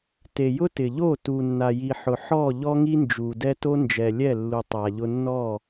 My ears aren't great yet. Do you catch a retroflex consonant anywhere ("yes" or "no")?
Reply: no